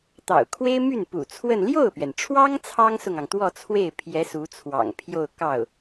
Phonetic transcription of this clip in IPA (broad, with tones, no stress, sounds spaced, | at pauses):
t̪ ɑ̰˨˩ ʊ̯ kʰ w e˥ ɪ̯ m y˥˩ n p ṵ˨˩ t͡sʰ w ə˥˧ n l j o˥˩ ʊ̯ p ɥ ɛ˩ n ʈ͡ʂʰ w ɑ˥ ŋ t͡sʰ ɑ˥ ŋ s ʊ˨ ŋ ɑ˩ ŋ t̪ w ɔ˥˧ t͡sʰ w e˥˩ ɪ̯ pʰ j ɛ˧˥ s u˧˥ t͡sʰ w ɑ̰˨˩ ŋ pʰ j o˥˧ ʊ̯ k ɑ˥˩ ʊ̯